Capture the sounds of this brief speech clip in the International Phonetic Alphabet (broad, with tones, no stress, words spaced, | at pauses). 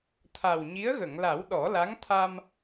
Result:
t̪ʰa˨˩wɲi˧˥ə̯ɣə˨˩˨ŋla˨˩˦w ɗɔ˨˩˦la˧˥ŋt̪ʰa˧m